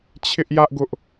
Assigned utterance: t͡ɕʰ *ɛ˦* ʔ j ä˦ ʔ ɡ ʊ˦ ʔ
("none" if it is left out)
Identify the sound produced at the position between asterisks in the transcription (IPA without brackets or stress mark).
ɪ˦